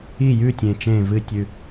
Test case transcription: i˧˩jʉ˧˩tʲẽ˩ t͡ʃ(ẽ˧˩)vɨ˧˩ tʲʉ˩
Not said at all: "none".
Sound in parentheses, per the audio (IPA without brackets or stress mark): ẽ˧˩